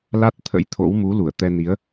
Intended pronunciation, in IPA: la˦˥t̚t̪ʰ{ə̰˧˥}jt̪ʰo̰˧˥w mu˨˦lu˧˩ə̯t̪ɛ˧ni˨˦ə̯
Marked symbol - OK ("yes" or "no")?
yes